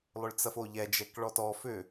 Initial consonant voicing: voiced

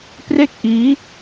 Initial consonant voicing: voiceless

